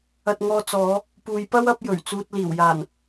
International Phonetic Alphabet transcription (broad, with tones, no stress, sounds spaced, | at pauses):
ɐ˧ t̚ ŋ ɔː˧ t͡s ɔː˨˧ | p uː˨˧ j p ɐ˥ w ɐ˨˥ p̚ j ɵ˨˩ ɥ t͡s uː˨ t̚ l iː˨˩ w j aː˨˩ n